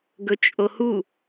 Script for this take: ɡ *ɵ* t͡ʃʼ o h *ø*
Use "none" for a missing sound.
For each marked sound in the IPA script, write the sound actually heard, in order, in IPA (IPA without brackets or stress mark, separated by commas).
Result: ɵ, u